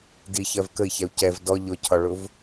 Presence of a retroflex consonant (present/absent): present